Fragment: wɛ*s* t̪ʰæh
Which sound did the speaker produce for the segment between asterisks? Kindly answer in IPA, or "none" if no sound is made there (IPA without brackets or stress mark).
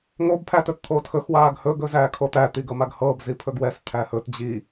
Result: s